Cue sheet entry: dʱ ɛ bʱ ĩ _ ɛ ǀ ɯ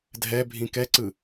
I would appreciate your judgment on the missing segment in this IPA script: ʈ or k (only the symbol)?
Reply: k